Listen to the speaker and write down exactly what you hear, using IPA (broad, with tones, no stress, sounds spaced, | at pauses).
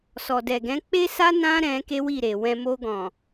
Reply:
s ɔ˨ d ɛ˨ ɡ ɛ̃˨˦ k͡p e˦ s a˦ n ã˦ ɾ ɛ̃˧ k e˦ w i˦˨ ɾ e˨ w ɛ̃˧ m o˧ ɡ ɔ̃˨